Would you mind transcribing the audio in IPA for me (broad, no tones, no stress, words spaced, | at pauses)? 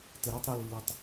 tɘɾɛtˤ ɾɘlːetˤ